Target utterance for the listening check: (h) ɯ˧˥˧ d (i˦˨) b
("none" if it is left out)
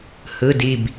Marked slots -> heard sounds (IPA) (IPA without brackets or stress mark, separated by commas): h, i˦˨